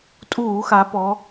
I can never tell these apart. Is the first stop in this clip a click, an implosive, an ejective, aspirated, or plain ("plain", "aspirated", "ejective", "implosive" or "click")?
ejective